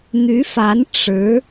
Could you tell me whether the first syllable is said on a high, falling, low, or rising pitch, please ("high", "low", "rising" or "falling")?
rising